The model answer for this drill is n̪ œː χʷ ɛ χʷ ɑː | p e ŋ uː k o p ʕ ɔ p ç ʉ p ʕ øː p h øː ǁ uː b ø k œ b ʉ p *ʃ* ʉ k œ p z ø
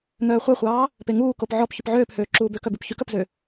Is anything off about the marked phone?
yes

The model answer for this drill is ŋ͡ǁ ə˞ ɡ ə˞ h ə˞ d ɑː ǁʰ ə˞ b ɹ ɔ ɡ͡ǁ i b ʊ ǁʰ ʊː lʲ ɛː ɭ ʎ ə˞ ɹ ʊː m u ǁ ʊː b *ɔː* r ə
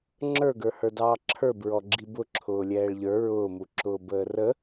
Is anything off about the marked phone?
yes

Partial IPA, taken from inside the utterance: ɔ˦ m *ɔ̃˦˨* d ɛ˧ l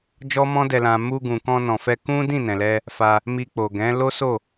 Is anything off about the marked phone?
yes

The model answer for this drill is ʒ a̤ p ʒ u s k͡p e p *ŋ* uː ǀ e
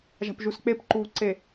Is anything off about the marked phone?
yes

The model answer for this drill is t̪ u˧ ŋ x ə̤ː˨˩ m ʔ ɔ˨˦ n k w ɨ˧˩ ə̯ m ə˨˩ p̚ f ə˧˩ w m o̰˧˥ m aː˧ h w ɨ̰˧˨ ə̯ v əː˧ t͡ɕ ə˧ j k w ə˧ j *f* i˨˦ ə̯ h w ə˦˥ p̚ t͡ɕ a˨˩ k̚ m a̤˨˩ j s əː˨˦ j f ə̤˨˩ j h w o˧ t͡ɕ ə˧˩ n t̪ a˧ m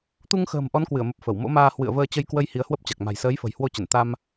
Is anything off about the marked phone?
yes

